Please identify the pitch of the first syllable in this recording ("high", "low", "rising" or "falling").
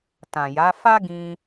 low